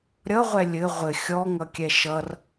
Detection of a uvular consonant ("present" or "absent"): present